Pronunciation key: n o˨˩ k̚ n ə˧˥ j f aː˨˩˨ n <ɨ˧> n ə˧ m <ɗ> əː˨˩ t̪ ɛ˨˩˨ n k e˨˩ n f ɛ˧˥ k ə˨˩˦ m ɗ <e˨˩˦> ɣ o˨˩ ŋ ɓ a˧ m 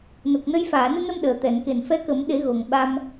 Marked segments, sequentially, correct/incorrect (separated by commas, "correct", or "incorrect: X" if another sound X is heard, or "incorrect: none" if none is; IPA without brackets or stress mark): correct, correct, correct